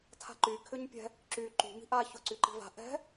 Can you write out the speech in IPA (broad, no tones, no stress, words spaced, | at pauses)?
tʰa̤ǃy kʰʏɲpʲɛ̤ | ǁy ǃṳ mi̤ʔa çʊ ǀyǃi̤va̤ ʔɛ̤